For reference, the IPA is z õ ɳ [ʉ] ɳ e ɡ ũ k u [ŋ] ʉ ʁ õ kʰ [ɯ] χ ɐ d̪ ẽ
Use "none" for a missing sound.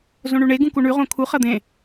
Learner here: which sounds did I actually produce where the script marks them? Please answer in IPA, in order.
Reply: ʉ, ɳ, u

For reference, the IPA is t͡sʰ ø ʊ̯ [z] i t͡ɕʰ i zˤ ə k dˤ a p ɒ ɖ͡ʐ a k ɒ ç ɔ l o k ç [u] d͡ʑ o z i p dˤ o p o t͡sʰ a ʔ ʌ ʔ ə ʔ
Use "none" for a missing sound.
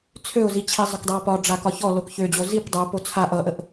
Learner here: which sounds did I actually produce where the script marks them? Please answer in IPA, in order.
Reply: z, ø

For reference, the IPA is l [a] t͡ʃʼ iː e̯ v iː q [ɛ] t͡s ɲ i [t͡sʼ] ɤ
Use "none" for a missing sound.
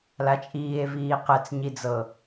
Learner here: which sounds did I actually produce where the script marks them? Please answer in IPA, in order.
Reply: a, ɛ, d͡z

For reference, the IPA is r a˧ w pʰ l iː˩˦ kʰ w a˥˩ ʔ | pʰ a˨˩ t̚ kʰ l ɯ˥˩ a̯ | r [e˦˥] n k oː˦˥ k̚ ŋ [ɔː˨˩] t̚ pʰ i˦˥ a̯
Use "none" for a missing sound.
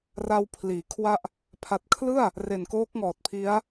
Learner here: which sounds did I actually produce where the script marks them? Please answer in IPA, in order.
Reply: e˨˩, ɔː˨˩

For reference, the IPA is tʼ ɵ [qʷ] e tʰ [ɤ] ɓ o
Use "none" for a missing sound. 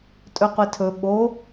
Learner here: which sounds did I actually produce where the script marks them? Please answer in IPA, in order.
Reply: qʷ, ɵ

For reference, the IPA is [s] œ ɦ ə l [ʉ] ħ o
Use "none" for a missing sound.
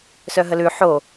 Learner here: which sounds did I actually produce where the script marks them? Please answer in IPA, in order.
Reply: s, ʉ

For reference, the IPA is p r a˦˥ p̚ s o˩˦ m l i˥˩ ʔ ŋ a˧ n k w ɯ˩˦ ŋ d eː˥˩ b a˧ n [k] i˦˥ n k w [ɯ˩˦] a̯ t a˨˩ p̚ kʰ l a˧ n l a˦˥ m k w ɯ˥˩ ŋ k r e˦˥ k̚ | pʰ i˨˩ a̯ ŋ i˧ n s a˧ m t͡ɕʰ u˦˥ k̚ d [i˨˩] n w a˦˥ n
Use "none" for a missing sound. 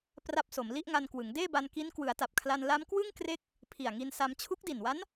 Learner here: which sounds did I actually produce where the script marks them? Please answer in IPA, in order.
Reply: k, ɯ˩˦, i˨˩

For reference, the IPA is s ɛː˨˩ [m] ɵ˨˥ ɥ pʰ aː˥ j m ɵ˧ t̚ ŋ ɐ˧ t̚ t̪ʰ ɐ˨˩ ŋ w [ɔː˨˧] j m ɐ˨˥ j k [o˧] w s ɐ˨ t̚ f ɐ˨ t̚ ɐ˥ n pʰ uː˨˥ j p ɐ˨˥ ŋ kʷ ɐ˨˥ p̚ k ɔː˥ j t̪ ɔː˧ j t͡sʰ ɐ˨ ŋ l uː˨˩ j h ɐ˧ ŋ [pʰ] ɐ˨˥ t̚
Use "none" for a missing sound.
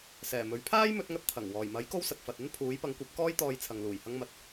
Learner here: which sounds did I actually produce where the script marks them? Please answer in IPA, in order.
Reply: m, ɔː˨˩, o˥, m

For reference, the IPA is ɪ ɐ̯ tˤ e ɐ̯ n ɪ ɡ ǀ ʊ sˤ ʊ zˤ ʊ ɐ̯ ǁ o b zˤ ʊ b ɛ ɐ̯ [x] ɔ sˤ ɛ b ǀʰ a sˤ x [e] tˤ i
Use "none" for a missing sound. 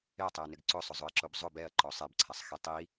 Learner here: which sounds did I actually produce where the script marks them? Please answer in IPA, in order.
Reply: ǃ, e

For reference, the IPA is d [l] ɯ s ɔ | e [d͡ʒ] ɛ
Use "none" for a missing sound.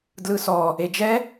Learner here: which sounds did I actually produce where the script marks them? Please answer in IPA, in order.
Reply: l, d͡ʒ

